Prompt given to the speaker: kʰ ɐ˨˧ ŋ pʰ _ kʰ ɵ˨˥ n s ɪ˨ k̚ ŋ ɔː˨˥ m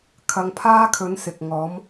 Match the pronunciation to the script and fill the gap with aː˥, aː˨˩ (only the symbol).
aː˥